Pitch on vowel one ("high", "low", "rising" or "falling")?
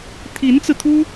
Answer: rising